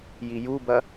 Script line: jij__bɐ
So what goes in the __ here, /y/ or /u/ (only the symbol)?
u